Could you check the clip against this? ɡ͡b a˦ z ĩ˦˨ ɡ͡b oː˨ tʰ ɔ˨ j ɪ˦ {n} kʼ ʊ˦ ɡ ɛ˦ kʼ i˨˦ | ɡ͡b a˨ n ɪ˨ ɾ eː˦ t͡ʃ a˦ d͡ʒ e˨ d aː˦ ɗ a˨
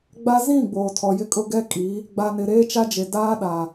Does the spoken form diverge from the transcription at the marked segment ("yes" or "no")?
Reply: yes